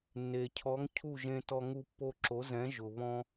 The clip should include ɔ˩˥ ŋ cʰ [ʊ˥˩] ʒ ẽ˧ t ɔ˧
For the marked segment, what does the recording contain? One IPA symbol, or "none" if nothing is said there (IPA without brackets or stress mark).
u˥˩